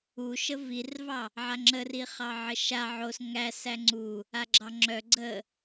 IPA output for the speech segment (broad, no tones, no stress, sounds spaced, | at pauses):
u ʃ ə v i r v ɑ | ʕ a ŋ͡ǁ ə r i χ ɑ ʕ ə ʃ a ʕ o s ŋ æ s æ ŋ͡ǀ u | a ɡ͡ǁ ɑ ŋ͡ǁ œ ɡ͡ǀ ə